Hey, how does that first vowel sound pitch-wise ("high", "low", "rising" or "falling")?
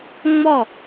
falling